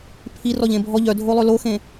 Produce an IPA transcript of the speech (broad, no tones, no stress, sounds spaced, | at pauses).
pʰ i r ɔ ʎ ẽ bʱ ɔ ʎ œ dʱ o lˠ ø l o x ẽ